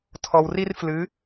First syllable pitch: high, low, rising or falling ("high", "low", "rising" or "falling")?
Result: low